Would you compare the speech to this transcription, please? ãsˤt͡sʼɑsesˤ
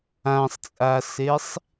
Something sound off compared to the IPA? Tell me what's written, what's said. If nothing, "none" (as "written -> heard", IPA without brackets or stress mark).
ɑ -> a